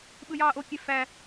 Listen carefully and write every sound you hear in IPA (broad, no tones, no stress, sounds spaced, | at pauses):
ɓ ɯ j ɑː ʔ o kʲ e f æ